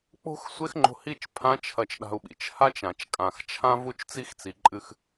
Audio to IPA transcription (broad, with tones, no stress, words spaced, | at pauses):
k͡po̤˦xsʷe˦xŋ͡ǃo̤˧hi˦˨t͡ʃ pʰã˦t͡ʃʰɐ˧t͡ʃɗa̤˧u̯ɓḭ˨t͡ʃ ha˦t͡ʃã˨t͡ʃkʼã˨xt͡ʃʰã˦ vu˦t͡ʃt͡si˦xt͡si˨ǃʼɨ˧x